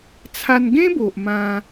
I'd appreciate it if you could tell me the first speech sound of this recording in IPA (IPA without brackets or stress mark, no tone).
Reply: t͡sʰ